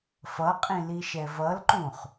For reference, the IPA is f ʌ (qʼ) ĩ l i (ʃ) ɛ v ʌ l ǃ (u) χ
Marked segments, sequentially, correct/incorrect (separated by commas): correct, correct, incorrect